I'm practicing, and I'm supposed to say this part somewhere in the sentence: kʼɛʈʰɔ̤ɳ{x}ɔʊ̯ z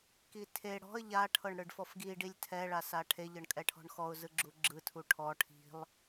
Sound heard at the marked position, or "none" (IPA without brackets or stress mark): x